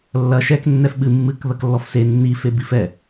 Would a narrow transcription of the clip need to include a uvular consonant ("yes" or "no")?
no